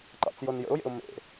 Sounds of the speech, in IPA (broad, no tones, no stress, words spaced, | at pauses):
ǃɑ̰t͡sjonjə̰ʊ̯jḛʊ̯ mḛ